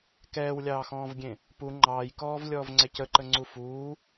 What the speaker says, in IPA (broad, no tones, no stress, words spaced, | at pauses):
kɛːwlʲɑːxɔ̃ːvɡʲẽ | pu ŋ͡ǃɑːjkɔːvlʲɔːvŋ͡ǀɛc əǃəŋ͡ǀu fuː